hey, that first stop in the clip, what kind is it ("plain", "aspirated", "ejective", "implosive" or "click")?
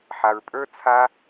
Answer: ejective